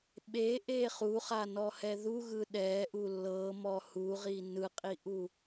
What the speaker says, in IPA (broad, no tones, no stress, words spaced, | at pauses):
ɓeʔe χuχanɔhɛ ðuɣɯ ɗɛʔu lːɤmɔ huʁi nɯqʼiʔu